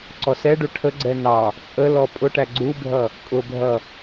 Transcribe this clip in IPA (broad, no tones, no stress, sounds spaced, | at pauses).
ǀ ɔ s ɛ ɖ u ʈʰ ə ɡ͡ǀ ɛ n ɑ | t͡sʼ ə l ɔ pʼ ʊ ʈ æ ɡ͡ǀ u bʱ ʌ | kʼ ʊ bʱ ʌ